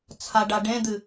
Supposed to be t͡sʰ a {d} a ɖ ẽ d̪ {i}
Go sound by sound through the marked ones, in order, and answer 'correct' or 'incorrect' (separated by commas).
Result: incorrect, incorrect